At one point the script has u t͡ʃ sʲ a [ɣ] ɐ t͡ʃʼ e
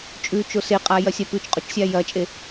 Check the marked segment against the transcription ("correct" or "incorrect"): incorrect